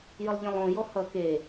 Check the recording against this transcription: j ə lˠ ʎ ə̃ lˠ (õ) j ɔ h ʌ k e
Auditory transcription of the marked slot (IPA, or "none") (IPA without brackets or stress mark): õ